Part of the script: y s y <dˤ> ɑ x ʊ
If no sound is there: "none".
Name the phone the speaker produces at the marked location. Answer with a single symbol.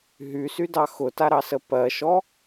d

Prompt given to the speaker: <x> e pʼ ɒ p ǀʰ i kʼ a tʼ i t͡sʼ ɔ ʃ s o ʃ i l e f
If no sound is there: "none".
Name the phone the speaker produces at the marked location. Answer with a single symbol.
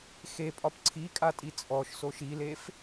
x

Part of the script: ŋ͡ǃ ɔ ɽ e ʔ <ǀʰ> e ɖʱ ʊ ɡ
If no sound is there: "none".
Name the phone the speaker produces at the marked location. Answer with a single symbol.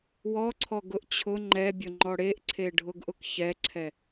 ǀʰ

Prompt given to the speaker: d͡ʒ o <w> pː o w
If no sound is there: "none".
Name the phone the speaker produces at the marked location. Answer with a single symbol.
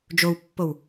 w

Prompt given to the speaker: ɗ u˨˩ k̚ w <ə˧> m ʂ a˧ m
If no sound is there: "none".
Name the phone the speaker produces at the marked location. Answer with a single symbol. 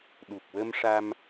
ə˧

